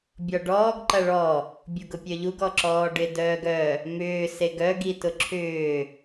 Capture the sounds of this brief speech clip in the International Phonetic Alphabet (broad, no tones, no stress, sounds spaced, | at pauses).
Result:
bʲ ɔ ɖ ɔː ɡ ǃ ɐ ɭ ɔ | bʲ u ɡ ʊ pʲ œ ʎ u ɡ ɔ ǁ ɔː ɖ ɪ d œː ɡ œ | m ʏː s e ɡ œ ɡ i t ʊ ǁʰ ʏː